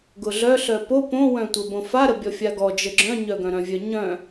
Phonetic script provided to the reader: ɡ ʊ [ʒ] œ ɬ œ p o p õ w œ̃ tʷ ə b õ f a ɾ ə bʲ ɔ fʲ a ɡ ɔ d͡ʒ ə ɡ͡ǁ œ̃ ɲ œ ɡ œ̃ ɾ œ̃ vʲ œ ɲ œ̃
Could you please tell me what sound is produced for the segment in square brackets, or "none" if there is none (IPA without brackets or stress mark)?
ɮ